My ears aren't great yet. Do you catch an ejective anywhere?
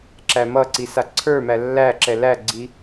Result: no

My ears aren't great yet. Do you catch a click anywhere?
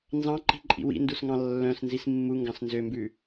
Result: yes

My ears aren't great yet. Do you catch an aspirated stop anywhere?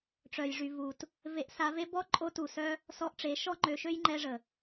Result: no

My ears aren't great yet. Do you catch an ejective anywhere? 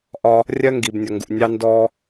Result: no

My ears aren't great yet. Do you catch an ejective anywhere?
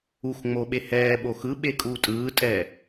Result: yes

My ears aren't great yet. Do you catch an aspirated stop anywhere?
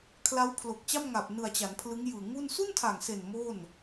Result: yes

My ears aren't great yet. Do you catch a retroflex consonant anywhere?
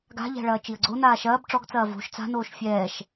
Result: yes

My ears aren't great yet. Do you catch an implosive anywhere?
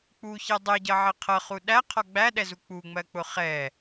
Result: yes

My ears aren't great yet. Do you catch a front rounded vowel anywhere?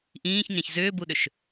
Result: yes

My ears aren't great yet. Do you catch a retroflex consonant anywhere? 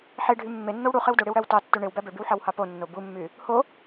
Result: yes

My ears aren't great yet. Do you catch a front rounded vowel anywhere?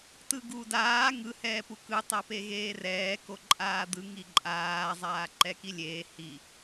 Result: no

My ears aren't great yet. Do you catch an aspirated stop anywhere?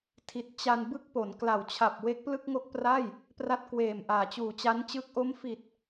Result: yes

